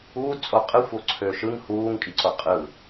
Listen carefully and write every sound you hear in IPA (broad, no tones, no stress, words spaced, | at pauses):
uːdt͡sʼo qʼɯxʷoǀʰøːʃ ɯŋ huːŋkʼiǀo qʼɯ